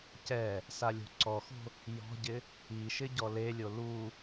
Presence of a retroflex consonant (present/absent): absent